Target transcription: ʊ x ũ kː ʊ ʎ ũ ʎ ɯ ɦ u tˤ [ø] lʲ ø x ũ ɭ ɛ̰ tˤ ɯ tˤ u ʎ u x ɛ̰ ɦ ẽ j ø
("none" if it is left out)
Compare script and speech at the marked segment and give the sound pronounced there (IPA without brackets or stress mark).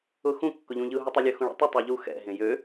e